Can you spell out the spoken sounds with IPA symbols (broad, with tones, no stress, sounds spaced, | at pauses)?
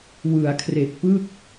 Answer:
w ɯ˩˦ a̯ kʰ r e˨˩ k̚ p ɯ˥˩ k̚